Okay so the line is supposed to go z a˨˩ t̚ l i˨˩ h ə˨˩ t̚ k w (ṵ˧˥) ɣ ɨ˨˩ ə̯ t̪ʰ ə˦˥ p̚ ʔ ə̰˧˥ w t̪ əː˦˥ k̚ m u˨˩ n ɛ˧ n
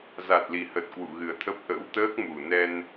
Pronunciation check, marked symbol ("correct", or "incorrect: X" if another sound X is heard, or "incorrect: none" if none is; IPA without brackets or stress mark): incorrect: ṵ˧˨